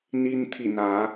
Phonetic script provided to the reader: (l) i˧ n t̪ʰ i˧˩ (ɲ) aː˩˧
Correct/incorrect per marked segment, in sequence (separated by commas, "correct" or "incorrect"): incorrect, incorrect